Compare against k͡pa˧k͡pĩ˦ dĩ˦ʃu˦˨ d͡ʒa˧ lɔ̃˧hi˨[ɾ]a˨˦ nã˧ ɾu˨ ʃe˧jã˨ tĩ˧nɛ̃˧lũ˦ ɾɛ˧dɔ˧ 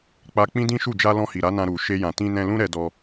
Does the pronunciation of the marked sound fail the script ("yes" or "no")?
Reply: no